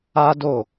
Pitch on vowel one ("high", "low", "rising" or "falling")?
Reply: high